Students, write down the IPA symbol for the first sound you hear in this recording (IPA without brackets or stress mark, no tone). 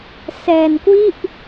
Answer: s